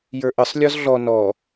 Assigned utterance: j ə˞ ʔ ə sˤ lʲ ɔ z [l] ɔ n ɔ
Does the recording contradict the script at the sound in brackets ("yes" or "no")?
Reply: yes